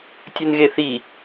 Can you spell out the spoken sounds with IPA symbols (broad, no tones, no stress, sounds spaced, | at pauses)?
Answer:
tʲ ɯ n ɣ e θ i